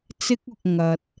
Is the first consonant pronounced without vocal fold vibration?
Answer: yes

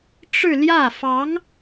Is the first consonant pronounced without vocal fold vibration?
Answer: yes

